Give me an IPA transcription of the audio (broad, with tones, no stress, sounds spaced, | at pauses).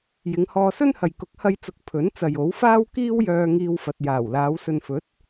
j ɪ˨˧ ŋ h ɔː˧ s ɵ˥ n h ɐ˨ j k ʊ˨˥ k̚ h ɐ˧ j t͡s ʊ˨˥ k̚ pʰ ɵ˨˥ n t͡s ɐ˨ j o˨˥ w f aː˥ w k iː˥ w j œː˧ ŋ iː˧ w f ɐ˨ t̚ j aː˨˩ w l aː˨˧ w s ɵ˨ n f ɵ˨˥ t̚